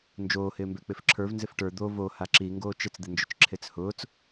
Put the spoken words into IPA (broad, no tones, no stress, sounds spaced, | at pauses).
n d͡ʒ oː h ɪː m b ɛ k͡p ɪ f ǁʰ ə˞ v n z ɪ f ʈ ə˞ d̪ o v o h a ǁ i ŋ ɡ oː t͡ʃ ɪ t͡s d̪ ɪ n d͡ʒ ʊ t͡ʃ ǁʰ e t͡s h ʊː t͡s